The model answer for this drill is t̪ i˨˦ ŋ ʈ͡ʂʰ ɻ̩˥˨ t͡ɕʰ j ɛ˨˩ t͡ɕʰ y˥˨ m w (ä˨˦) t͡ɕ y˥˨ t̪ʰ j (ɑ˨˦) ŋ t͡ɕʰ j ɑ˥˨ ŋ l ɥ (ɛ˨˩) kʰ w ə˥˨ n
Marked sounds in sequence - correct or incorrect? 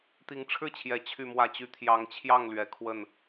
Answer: incorrect: ä˥˨, correct, correct

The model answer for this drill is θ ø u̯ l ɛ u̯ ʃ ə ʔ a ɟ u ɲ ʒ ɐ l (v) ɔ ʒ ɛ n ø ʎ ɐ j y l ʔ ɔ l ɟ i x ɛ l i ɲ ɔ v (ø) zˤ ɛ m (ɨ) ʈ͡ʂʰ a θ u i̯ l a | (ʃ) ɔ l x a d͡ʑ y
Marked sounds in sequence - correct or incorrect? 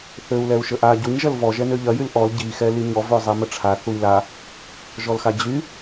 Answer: correct, correct, incorrect: ə, incorrect: ʒ

